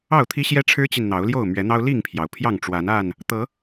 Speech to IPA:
ɑ˥˨ʊ̯t̪ʰi˦ ɕjɛ˦ ʈ͡ʂʰɻ̩˦t͡ɕi˨n n̪ɑ˨˦ʊ̯ljo˥˨ʊ̯ mɥɛ˨˦n̪ɑ˦ʊ̯ li˥˨ŋpʰjɑ˩ʊ̯ pʰjɑ˥˨ŋʈ͡ʂwa˨˦na˥˨n | t̪ɤ˨˦

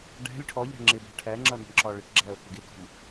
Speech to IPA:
ɖæ̤lʲ ʈʰɔʎæ̤ ŋ͡ǁɪbæ̤ ʈʰæŋ͡ǁʌ nə̤ɳǁɒɭɪʈɡ͡ǁæo̯ kɪɡɪkɔ̤m

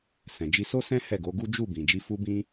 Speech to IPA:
sɛ̃˨d͡ʒi˨˦so˦sɛ̃˦ hɛ˦˨ɡo˨˦ɡu˦ d͡ʒu˦˨ bĩ˨d͡ʒi˨˦ fu˦bĩ˦

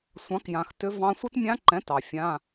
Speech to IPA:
sʷɑ̃˨˥kjã˨x tʏ˦˥vɑ̃˦˥ sʷi˦˥tmʲã˦˥ǃɛ̃˨˥ tɑ˨fʲã˧˥˧

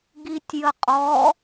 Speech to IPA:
ɡitʲjəqʼɔ

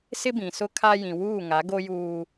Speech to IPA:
sɪ˦bĩ˨sʊ˦kʰa˦ jĩ˨wuː˦˨ ŋa˨˦ɡo˦juː˦

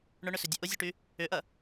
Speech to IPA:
ɳʊɳʏsʏdʲɐ ʔʊzʲʊʈy | ʏʔɐ

